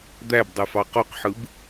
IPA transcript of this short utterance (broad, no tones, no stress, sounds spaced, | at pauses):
d̪ æ b dˤ y f ɑ q o q ħ ɯ b